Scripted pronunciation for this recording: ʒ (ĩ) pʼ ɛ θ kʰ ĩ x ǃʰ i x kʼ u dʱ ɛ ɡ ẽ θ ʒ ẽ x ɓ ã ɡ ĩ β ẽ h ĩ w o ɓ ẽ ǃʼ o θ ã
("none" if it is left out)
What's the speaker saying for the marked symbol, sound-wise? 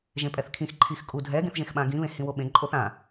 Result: ẽ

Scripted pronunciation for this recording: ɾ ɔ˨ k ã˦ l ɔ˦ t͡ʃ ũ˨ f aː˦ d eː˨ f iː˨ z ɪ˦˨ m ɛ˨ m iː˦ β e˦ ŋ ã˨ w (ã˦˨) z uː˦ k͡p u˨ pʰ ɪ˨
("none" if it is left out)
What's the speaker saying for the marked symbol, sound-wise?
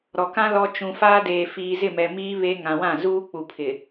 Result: ã˦˨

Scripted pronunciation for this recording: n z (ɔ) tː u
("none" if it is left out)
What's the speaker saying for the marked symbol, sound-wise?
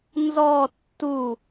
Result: ɔ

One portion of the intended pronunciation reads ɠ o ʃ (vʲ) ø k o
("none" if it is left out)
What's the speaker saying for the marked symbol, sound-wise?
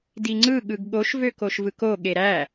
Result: v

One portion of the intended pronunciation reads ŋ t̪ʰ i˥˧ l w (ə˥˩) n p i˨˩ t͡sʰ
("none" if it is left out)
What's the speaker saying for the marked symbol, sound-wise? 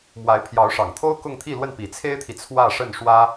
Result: ə˥˩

